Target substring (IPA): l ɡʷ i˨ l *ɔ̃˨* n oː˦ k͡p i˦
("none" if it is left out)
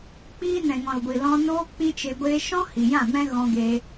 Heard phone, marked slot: ɔ̃˧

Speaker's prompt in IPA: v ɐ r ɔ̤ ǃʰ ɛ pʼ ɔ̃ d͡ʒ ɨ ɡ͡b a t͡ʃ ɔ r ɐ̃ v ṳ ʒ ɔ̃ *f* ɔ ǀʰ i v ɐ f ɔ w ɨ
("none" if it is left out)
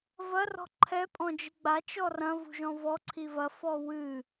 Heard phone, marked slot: v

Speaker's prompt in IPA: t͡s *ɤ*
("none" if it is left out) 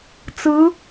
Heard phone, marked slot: ɯ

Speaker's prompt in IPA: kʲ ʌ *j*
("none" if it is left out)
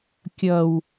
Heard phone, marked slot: w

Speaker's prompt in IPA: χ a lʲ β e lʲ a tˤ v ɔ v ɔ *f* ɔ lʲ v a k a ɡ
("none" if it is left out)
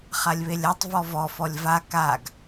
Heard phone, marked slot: f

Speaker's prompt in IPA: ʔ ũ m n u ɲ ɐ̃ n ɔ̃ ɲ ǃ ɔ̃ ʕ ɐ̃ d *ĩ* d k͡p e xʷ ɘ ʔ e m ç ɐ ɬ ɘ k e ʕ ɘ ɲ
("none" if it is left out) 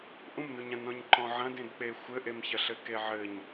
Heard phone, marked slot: ẽ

